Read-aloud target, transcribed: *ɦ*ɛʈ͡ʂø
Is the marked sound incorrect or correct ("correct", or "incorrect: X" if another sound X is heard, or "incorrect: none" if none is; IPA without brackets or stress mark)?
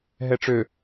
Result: correct